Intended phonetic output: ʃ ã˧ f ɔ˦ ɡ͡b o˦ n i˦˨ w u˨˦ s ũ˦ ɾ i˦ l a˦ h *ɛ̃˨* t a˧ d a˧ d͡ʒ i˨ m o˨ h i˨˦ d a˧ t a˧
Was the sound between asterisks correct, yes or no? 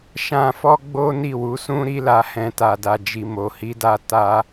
no